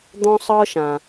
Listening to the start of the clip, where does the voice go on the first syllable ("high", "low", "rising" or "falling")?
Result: high